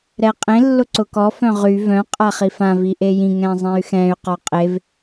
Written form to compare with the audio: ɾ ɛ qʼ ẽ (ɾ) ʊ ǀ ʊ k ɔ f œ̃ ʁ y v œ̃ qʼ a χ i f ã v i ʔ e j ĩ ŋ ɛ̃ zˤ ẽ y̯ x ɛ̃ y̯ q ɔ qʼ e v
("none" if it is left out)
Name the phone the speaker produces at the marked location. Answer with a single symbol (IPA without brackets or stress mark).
lː